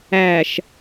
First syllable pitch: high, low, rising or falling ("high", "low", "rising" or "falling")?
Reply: low